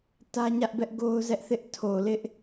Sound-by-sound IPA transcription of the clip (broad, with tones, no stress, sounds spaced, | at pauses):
t ä˦ ɲ ä˦ ʔ b ɛ˦ ʔ ɡ o˦ ʊ̯ z ɛ˦ ʔ θ ɪ˦ ʔ tʰ o˨ l ɪ˦ ʔ